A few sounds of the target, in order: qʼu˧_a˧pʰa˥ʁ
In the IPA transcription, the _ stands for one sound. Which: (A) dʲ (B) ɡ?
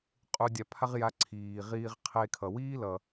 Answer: A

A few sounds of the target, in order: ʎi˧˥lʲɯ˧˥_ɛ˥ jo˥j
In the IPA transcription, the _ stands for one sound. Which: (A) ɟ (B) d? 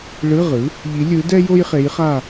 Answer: B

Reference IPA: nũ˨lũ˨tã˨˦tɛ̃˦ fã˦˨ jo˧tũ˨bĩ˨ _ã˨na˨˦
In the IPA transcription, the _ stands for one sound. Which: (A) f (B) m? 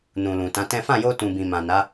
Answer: B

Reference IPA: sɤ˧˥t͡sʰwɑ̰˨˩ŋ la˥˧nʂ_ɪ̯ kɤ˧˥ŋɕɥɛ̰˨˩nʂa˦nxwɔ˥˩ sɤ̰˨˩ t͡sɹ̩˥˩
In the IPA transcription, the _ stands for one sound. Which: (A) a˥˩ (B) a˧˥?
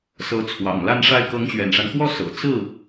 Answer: A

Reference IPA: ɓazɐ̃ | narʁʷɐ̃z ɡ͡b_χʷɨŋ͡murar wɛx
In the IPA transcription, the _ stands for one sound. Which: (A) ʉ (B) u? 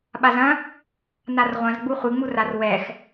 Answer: B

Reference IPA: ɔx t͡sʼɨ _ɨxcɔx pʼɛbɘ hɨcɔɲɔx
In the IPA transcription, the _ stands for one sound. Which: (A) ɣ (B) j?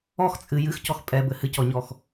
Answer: B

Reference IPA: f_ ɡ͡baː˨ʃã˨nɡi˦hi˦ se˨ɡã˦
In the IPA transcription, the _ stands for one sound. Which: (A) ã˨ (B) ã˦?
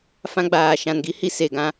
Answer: B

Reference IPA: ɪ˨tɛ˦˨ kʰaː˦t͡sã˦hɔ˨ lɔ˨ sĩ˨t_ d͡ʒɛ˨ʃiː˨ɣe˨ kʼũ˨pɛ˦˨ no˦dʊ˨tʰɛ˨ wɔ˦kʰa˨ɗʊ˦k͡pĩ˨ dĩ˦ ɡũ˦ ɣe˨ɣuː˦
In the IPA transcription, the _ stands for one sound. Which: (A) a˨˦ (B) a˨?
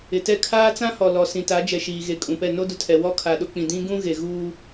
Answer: A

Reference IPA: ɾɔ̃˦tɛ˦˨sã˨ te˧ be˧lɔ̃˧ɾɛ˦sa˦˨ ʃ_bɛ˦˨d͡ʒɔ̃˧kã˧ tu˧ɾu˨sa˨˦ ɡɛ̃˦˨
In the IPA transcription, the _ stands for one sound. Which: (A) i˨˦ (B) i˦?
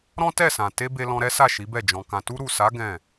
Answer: A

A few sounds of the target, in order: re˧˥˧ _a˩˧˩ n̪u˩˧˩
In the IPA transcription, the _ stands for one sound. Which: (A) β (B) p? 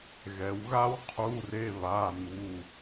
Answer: A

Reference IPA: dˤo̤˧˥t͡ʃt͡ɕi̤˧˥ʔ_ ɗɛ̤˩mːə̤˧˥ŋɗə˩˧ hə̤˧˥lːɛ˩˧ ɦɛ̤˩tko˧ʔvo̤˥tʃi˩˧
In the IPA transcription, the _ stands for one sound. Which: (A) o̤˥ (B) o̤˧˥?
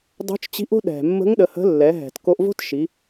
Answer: A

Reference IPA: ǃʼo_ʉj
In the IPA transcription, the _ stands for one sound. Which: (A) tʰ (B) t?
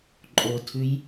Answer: A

